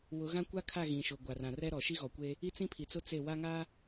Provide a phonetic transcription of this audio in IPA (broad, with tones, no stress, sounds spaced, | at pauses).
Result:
w ʊ˨˦ ɣ ã˦ kʷ a˦ kʰ a˦˨ ɣ ĩ˨ ʃ ʊ˨ ɡʷ a˨ r ã˨ r ɛ˦ ɾ ɔ˨ ʃ i˦ ɣ ɔ˨ kʷ e˦ | i˦ t͡s ĩ˦ pʰ i˨ t͡s ʊ˦ t͡s e˦˨ w a˦ ŋ a˦